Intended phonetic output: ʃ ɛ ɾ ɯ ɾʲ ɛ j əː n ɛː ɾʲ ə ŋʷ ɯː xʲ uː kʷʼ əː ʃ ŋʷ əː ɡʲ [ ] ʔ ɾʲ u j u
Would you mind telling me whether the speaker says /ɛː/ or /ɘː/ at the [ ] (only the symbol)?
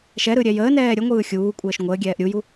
ɛː